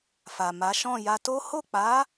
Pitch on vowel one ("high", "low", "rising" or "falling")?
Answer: low